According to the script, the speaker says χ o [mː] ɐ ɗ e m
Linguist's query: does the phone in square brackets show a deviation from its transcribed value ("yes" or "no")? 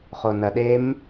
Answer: yes